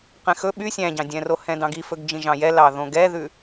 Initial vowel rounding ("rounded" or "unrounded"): unrounded